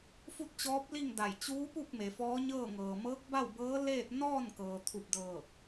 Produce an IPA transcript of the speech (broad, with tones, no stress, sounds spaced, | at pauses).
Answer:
f u˥˨ t̚ t͡ɕ ɔː˧˥ p̚ l i˥˨ ŋ d a˧˩ j t͡ɕ uː˧˥ p u˥˨ k̚ m e˩ f ɔː˧˥ ɲ ɤː˥˨ ŋ ɤː˩ m ɤː˧˥ k̚ b a˥˨ w b ɤː˧˥ l eː˥˨ t̚ n ɔː˥˨ n k ɤː˩ t̪ʰ u˧˩ p̚ d ɤː˧˩ k̚